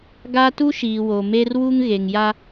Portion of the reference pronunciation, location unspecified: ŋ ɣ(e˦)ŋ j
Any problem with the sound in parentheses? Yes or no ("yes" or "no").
yes